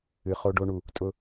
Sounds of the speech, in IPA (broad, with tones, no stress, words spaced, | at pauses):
ɨ˨ χo˦ɖo˦ɳu˦˨ | tʼʊ˦